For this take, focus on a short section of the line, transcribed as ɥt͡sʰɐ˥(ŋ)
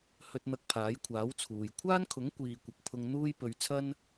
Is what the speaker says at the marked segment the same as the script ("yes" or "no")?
no